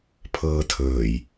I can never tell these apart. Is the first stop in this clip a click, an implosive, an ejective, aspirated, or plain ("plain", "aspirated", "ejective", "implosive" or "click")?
aspirated